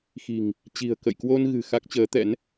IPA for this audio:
xi̤˨˩ŋ | t͡ɕi̤˨˩ə̯kə̰˧˨jkwo˧n ɣɨ̤˨˩ xa˦˥k̚t͡ɕəː˨˦t̪ɛ̰˧˥n

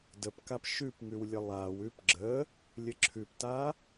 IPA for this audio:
dəpkap ʃʉpŋʉwlʲə lˠaw ʉpɡ͡ǁə | lʲəǁʰʉpta

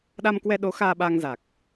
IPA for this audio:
ɗa˧mkwɛ˧ɗo˨˦ xaː˧ɓaː˧ŋ za˨˩k̚

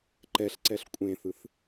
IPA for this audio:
ǃɛɬǀɛɬ kʷʼẽθɯθ

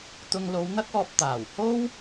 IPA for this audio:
t̪ʊ˧ŋlo˨˧wn̪ɐ˥k̚ ɔː˧p̚t̪aː˨˩w ho˥w

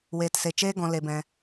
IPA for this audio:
weː˧tse˧ t͡ʃeː˦ɡɔ̃˧le˧ bɛ̃˧

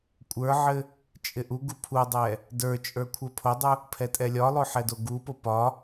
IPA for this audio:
kʷʼə˞ʕɘ | t͡ʃʼɪʔuɡu pʰudˤɛ | də˞t͡ʃʼə˞ kʷʰə˞pʰodˤu | pʰɛtʼɛlʲɒlˠo ħɛdoɡupo pɒ

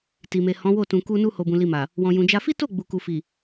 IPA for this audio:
ti˨me˨hɔ̃˨˦wo˦˨ tũ˨ku˧nu˧ ho˨bũ˨li˨ma˨ | wɔ̃˨jũ˨d͡ʒa˧ fi˦to˦˨ ɡ͡bu˨ku˨ fi˨

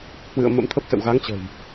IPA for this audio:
hwɨ̰˧˨ə̯ mə̰˧˥mt̪ʰə˦˥p̚sə̰˧˨w ɣa˨˦ŋt͡ɕə̤˨˩j

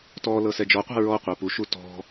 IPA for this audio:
tɔ lɤsɛd͡ʒɔqʷa̤ ɹɔqʷa puʃu tɔ̤

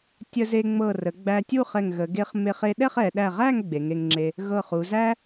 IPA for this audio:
tʲə˧ze˧ŋ͡mɤ˧˩ rə˩˧ɡ͡bæ˧ tʲu˥˧χɛ˧˩ŋɣə˩˧ ɡe˧χme˧χe˧ɗɛ˥˧χ ɛ˩˧ ɗæ˧˩ʁæ˥˧ŋ ɡ͡be˩˧ŋe˧ŋŋ͡ǁe˧ | ɣɤ˧˩χu˩˧zæ˥

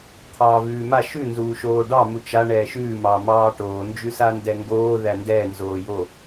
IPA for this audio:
t̪ʰɑːvʉːma ʃʉ nzuːʃoːɖɑ mut͡ʃa ɳɛːʃʉː mɑmɑːʈoː nd͡ʒʉsandɛŋɡoː ðændɛː nzoːjo

